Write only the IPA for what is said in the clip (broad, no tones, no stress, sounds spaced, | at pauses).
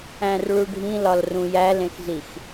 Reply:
æ̃ r ɭ u ɖʱ ĩ l ɒ l r ũ j æ l ẽ x z i x